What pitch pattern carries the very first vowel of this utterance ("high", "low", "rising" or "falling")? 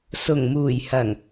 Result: low